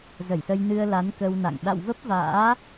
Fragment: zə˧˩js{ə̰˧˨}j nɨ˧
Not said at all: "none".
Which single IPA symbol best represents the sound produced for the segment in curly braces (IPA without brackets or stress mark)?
ə˧